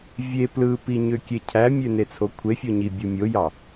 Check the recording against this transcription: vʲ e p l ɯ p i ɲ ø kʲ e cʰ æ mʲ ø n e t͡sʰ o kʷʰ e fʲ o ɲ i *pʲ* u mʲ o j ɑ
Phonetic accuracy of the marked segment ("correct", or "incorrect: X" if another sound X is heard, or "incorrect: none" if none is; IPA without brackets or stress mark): incorrect: bʲ